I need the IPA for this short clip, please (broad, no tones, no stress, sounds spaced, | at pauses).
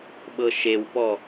ɓ ɤ ʃ e w p ɔ